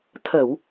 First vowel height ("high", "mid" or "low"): mid